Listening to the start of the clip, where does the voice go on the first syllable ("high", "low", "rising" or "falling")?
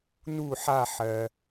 falling